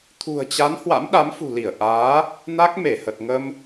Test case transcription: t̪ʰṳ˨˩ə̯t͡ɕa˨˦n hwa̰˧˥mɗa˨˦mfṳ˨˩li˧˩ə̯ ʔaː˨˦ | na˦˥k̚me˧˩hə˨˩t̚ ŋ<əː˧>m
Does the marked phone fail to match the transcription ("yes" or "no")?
yes